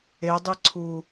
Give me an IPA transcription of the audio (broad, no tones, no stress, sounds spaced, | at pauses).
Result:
e dˤ i ǀʰ u